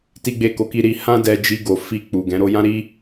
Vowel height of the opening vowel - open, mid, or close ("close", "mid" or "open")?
close